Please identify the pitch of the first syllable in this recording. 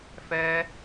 high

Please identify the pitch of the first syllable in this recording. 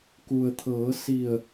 low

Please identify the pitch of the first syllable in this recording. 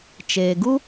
low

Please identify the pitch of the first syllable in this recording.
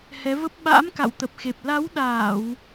rising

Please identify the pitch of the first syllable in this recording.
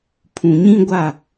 low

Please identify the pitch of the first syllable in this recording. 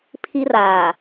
high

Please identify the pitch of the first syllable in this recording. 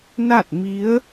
falling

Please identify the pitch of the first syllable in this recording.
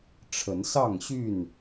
rising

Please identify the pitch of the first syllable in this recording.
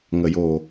low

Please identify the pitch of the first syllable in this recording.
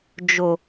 low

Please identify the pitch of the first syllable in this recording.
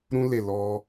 high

